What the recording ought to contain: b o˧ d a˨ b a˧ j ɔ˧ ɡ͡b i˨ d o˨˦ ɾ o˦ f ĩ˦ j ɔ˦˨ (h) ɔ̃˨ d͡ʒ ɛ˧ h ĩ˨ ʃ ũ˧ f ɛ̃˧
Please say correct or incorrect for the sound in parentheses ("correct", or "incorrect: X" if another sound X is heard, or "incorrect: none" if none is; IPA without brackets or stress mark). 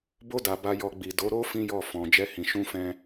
incorrect: f